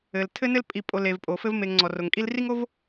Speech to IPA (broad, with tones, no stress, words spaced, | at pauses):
ɘ˩l tʰɘ˥nɘ˥l pʼi˨pʼo˨ le˨vpʼo˩fɘ˥v me˨ŋŋ͡ǀɔ˩ ro˩ŋkʼi˦lri˥ŋo˥v